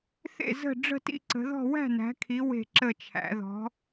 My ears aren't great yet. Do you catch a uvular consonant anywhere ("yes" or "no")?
no